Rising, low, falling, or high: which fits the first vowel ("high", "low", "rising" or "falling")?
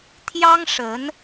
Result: high